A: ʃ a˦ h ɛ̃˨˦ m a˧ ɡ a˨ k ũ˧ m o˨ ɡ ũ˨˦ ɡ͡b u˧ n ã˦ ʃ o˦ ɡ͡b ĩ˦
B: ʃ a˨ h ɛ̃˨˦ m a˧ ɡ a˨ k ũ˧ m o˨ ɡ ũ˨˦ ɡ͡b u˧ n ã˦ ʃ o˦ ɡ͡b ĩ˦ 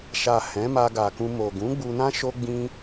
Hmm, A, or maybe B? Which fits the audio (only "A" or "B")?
B